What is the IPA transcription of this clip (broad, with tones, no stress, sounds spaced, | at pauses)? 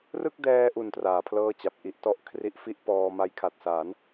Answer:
r ɯ˥˩ k̚ d ɛː˧ ʔ u˨˩ n t r aː˩˦ pʰ l ɤː˥˩ t͡ɕ a˨˩ p̚ ʔ i˦˥ ʔ t ɔ˥˩ ʔ kʰ r i˦˥ ʔ f i˥˩ ʔ p ɔː˧ m a˦˥ j kʰ a˨˩ t̚ s a˩˦ n